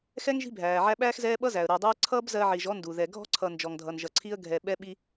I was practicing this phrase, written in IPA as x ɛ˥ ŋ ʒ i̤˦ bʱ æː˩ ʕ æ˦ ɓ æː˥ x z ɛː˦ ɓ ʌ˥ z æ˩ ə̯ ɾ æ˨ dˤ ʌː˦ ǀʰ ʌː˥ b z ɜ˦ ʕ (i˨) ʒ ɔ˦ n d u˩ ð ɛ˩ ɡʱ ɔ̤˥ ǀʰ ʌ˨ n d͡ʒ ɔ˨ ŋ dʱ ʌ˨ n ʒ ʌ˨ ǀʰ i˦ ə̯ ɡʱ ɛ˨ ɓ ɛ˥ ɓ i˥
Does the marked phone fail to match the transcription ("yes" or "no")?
no